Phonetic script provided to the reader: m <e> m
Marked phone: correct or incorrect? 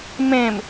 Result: incorrect